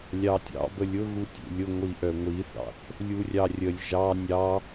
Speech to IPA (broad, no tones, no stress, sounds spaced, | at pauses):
lʲ ɑ tʲ ɑ̰ b ə lʲ ʊ ɣ u tʲ ṵ lʲ ʊ ŋʷ i ʔ œ ŋʷ i θ ɑ̰ θ | lʲ u rʲ ɑ rʲ ə lʲ ʒ ɑ nʲ ɑ